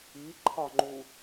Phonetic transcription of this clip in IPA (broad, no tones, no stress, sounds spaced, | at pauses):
i ǃʰ ɒ ŋ͡ǃ u